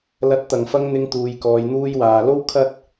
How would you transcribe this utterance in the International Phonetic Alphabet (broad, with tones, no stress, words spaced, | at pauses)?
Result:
lɐ˨˥t̚t̪ɐ˨ŋfɐ˧ŋ n̪ɪ˧ŋ t̪uː˧jkɔː˧j n̪uː˧jwaː˨lo˥w kʰɐ˥t̚